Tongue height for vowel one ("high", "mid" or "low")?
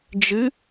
high